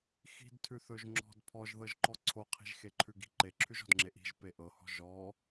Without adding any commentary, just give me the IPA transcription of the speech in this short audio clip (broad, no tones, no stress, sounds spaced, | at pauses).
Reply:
x i̤ d tʰ ʉ θ ɵ ʒ ŋ͡ǁ ɔ̤ d pʰ ɔ ʒ ð ɤ ʒ ǃ ɔ ǀʰ o qʰ i̤ ʒ x e ǃʰ ʉ ɡ i̤ ǃ e ǁʰ ʉ ʒ ɔ̤ d ŋ͡ǁ e ʔ i̤ ʒ p e ʔ ɤ h ɔ̤ ʒ ɔ